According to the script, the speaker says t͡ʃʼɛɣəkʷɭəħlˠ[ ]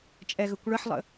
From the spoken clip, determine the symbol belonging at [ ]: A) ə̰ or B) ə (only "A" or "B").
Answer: A